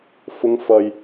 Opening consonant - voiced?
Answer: no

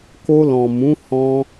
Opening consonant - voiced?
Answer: no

